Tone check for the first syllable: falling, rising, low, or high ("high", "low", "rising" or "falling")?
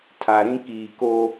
low